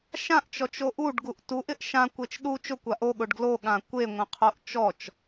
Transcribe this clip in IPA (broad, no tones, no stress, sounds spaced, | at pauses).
ʃ ã ʔ t͡ʃ ɔ t͡ʃ o ʔ u ɖ ɡ u ʔ t u ʔ ɪ ʔ ʃ ã kʷ e t͡ʃ ɗ u t͡ʃ ʊ kʷ a ʔ o ɠ ʊ ɖ ɡ l o ɠ ã kʷ e ŋʷ ɛ̃ qʰ o ʔ t͡ʃ ɔ t͡ʃ